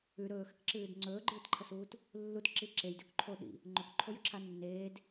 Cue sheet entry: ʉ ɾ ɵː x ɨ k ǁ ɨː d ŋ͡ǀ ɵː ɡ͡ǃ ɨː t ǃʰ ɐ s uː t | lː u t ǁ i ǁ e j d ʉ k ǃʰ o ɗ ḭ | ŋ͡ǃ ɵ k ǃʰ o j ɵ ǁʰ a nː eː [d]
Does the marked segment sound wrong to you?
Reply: no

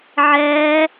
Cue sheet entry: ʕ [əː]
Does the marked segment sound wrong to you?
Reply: yes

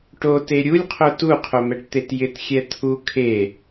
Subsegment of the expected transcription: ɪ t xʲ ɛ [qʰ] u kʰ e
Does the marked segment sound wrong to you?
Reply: yes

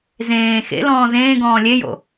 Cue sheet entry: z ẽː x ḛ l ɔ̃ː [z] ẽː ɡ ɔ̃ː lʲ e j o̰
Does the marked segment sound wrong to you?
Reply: no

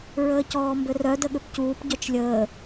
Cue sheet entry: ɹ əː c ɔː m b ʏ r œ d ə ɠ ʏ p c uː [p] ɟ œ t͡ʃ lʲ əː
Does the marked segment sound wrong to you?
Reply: no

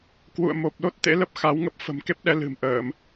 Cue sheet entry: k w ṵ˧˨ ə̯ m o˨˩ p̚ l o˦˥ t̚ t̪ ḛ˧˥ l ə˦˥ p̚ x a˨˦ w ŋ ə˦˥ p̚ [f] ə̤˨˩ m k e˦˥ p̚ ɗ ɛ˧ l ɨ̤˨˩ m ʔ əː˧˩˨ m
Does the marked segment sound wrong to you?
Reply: no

